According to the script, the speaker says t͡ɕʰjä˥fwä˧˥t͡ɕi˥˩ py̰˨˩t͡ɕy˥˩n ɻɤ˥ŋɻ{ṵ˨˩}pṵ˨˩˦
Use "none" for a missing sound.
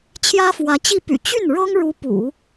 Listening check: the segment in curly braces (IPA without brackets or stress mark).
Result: u˧˥